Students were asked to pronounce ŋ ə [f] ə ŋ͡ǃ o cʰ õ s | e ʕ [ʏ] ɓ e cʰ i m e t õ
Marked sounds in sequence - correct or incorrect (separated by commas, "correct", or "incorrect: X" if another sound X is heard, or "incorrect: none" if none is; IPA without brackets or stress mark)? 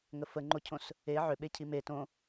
correct, correct